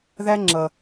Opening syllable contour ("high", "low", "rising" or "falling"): high